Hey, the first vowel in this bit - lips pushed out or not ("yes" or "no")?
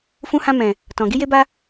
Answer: yes